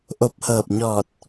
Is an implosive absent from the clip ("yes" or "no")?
yes